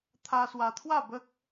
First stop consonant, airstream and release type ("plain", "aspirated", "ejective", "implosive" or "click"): aspirated